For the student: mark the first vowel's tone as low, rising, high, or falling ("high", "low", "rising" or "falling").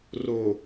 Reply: low